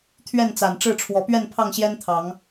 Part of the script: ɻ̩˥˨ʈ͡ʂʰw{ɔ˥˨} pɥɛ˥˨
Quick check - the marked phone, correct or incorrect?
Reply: incorrect